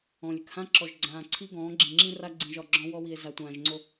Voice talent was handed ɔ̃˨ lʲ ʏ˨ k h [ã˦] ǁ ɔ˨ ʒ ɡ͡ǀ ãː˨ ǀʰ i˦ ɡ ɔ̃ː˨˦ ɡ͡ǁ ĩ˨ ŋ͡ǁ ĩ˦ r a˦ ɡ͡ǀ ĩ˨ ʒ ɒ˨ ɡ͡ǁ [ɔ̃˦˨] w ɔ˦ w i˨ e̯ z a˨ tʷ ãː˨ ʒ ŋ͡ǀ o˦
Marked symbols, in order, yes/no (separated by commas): yes, no